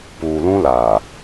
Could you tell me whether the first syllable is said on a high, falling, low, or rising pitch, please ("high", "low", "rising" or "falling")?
low